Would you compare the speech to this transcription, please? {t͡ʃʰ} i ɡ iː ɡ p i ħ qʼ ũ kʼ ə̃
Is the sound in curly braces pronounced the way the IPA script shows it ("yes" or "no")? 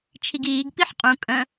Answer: yes